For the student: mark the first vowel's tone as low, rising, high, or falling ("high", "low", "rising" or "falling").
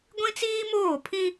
high